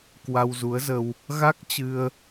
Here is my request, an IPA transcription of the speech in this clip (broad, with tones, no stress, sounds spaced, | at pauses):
k w a˧ w z u˨˦ ə̯ z ə˧ w | ɣ a˦˥ k̚ t͡ɕ ɨ˧ ə̯